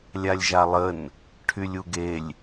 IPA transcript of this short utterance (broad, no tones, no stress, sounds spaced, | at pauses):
lʲ a lʲ ʒ a lˠ ə n | ʈʰ y lʲ u ɡ e lʲ